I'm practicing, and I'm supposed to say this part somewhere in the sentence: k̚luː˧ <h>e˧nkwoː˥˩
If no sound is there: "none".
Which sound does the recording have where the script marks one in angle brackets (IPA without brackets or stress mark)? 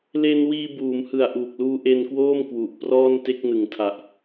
ʔ